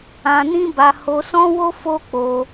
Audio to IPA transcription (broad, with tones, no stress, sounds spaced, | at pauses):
ã˧ n ĩ˦ b a˧ h o˧ s ɔ̃˦ w o˦ f o˦ k͡p o˧